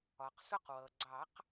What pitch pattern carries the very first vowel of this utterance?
low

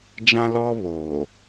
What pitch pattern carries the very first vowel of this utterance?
high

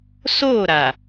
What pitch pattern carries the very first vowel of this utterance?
falling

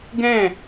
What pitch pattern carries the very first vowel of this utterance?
falling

